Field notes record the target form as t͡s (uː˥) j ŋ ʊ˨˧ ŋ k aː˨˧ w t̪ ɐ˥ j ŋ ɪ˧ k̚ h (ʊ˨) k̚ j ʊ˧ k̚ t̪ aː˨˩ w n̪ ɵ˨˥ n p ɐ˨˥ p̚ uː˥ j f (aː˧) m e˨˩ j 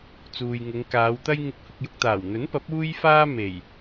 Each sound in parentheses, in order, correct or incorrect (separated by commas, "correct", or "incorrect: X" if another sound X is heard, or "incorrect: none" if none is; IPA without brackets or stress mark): incorrect: uː˨, incorrect: ʊ˧, incorrect: aː˥